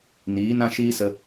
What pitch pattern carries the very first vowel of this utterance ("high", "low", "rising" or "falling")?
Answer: rising